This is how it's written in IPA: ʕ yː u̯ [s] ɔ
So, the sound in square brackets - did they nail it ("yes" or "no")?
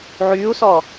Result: yes